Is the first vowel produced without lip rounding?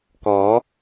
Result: no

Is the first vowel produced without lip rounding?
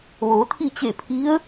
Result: no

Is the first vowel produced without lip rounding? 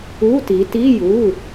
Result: no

